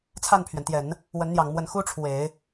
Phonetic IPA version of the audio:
t͡sʰ a˥˩ n pʰ ɥ ɛ˩ n t̪ j ɛ˨˩˦ n | w ə˧˥ n n̪ j ɑ˨˩ ŋ m w ə˧˥ n x u˥ ʈ͡ʂʰ w e˨˩˦ ɪ̯

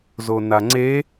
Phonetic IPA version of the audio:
z o n a ŋ͡ǀ e

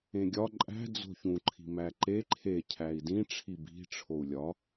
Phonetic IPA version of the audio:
ẽ ɡʲ ɒ ǃʼ æ̤ d͡z o̤ ç ũ ǃʰ i̤ m æ ǃ e ǃʰ e cʰ æ i̯ d ĩ ʈ͡ʂʰ i b i̤ ʈ͡ʂʰ o u̯ lʲ ɒ

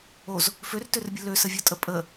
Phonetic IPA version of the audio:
o z | f ø r t ø r bʲ ə l ø s ə vʲ ɔ tʼ ə pʼ ə

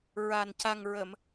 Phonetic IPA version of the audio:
ɹ a˨˩ n c a˨˩ ŋ ɹ ə˨˩˨ m

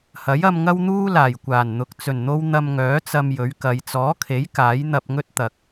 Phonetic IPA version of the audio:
h ɐ˨˥ j ɐ˧ m ŋ ɐ˥ w n̪ uː˥ l aː˨˩ j kʷ aː˨˩ n n̪ ʊ˨˥ k̚ t͡s ɵ˨˩ n n̪ o˥ w n̪ ɐ˧ m ŋ œː˨˥ t͡s ɐ˧ m j ɵ˨˥ ɥ k ɐ˨˧ j t͡s ɔː˨˥ kʰ e˨˥ j k aː˨˥ j n̪ ɐ˧ p̚ ŋ ɵ˥ t̚ t̪ ɐ˨ k̚

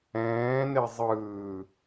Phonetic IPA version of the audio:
ɛ̃ː n e zˤ ɯː

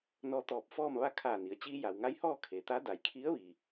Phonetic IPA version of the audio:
n ɔː˧ t̪ ɔː˧˩ p̚ f ɔː˥˨ m ʋ a˥˨ kʰ aː˧˩ n i˩ ə̯ t͡ɕ iː˧ j a˩ w ŋ a˧˥ j h ɔː˥˨ kʰ e˩ t̪ a˧˥ d a˩ j kʰ i˧˥ ə̯ ʋ i˩

